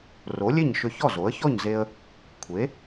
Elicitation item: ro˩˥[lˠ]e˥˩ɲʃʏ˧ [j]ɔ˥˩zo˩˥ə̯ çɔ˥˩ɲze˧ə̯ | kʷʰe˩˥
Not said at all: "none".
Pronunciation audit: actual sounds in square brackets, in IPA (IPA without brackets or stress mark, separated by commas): lʲ, ç